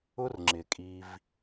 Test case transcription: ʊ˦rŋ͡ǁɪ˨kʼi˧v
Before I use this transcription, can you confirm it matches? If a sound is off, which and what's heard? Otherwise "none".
none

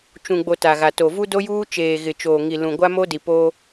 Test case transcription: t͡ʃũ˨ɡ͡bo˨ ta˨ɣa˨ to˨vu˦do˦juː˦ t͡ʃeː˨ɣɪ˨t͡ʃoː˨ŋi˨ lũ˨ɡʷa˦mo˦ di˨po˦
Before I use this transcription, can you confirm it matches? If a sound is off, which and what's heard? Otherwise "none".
none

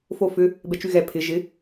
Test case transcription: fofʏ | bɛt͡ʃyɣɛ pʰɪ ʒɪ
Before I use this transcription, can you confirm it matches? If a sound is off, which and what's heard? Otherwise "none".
none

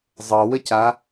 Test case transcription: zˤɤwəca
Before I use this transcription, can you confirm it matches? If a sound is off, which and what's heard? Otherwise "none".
none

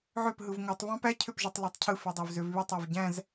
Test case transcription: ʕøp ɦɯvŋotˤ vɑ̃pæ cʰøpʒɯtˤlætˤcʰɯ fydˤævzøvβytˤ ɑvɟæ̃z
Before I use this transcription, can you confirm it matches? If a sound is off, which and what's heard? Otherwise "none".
none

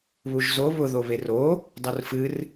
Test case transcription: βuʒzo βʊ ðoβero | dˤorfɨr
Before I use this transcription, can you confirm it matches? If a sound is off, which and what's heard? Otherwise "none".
none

